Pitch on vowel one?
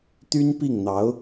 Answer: high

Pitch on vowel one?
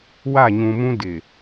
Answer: falling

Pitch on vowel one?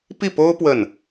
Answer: falling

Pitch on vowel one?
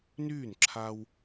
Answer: falling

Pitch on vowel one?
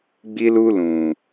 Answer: high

